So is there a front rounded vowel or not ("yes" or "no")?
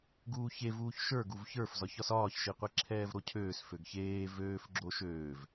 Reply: yes